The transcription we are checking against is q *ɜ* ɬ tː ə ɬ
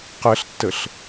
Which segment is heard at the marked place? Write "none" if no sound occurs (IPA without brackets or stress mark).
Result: ɜ